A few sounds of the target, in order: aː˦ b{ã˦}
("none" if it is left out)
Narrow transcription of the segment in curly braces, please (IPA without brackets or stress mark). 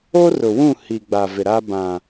ã˨